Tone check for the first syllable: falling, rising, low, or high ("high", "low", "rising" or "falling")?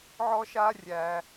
high